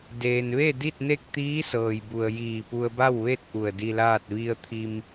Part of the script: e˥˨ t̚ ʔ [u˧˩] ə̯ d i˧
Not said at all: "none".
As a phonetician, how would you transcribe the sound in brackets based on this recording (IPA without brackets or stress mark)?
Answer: u˧˩